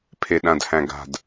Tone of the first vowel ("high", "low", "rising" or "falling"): low